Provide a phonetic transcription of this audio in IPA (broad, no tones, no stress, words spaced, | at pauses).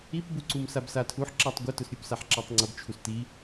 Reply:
ipbuǀum sabsatʰuħ ǁatˤɡʷɘ tʊsɾʲʊpsaħ ǁatˤŋ͡ǀʊbt͡ʃʰus ti